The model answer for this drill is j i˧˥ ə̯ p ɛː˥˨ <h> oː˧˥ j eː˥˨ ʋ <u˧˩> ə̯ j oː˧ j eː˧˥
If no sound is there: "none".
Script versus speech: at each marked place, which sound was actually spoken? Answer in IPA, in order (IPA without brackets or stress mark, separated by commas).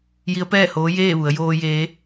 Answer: h, u˩˧